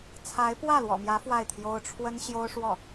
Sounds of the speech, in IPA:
t͡sʰ a˧˥ ɪ̯ p w ä˥˩ l w ɔ̰˨˩ m j ä˧˥ f w a˥˩ ɪ̯ t̪ʰ j o˥ ʊ̯ ʈ͡ʂʰ w ə˥ n ɕ j o˥ ʊ̯ ʂ w ɔ˥˩

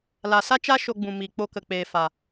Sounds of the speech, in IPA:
l a˨ s a˦ t͡ʃ a˦ ʃ o˧ ɡ͡b ũ˨ m iː˨ k͡p o˧ k ə˨ k͡p eː˨ f a˨

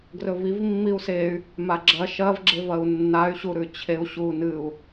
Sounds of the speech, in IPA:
ɡ r ɵ v i v mː i u̯ s e y̯ | m a ɡ͡ǁ ɐ ʃ ɐ v ɡ͡ǁ e v ɐ u̯ nː a y̯ ɕ u ɾ ʉ t͡ɕʰ e u̯ ɕ u n ɨ u̯

